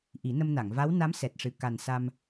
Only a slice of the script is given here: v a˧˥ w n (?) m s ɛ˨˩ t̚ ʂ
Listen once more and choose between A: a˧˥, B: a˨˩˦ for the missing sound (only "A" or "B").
A